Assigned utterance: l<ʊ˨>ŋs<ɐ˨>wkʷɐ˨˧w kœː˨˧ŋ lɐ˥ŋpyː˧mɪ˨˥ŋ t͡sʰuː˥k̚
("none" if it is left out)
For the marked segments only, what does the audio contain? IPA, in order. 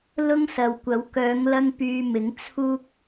ʊ˥, ɐ˨

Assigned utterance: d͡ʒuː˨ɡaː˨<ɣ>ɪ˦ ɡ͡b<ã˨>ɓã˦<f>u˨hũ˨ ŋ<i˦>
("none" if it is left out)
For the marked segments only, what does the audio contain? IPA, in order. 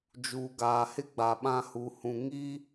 h, a˨, h, i˦

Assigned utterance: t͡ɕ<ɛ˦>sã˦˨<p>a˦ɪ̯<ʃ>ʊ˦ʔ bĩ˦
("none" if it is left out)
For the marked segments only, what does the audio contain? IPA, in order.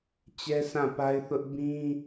ɛ˦, p, θ

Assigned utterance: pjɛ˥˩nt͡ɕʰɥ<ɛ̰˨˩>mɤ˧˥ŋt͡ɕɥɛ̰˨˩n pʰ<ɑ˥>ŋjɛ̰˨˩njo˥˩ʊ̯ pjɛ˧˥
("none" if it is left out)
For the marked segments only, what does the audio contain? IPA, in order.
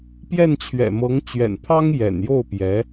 ɛ̰˨˩, ɑ˥

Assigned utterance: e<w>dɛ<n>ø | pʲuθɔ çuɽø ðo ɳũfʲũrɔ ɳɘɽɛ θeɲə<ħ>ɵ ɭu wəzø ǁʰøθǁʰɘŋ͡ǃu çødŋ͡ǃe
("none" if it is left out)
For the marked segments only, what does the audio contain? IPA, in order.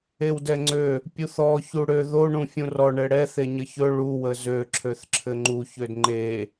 w, ŋ͡ǀ, ç

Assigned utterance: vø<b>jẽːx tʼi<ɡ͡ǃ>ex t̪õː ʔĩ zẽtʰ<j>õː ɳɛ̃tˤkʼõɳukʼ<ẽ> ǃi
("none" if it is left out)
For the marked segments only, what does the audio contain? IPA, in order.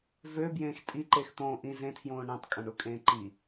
b, ǃ, j, ẽː

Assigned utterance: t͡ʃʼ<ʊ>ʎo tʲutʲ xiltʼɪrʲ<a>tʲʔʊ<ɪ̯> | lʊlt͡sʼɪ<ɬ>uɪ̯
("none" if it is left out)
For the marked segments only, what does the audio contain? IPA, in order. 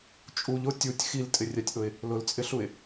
u, a, ɪ̯, ɬ

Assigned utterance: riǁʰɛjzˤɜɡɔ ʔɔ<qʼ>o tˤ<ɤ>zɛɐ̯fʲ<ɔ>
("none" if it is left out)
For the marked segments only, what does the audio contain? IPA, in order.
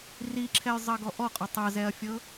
qʼ, ɤ, ɤ

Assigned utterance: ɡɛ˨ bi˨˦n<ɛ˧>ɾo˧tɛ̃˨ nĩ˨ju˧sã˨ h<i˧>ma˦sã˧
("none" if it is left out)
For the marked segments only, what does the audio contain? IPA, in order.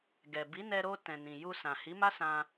ɛ˧, i˨˦

